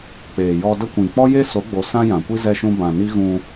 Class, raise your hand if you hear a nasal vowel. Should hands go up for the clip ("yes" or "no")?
yes